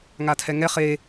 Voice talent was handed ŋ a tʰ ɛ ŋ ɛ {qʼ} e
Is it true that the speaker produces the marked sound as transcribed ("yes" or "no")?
no